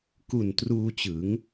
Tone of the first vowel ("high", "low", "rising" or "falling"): low